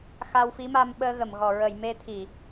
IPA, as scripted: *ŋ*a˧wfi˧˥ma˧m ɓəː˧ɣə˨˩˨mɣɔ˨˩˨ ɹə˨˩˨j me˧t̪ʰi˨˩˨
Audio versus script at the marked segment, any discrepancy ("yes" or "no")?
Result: yes